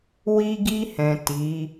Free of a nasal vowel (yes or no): no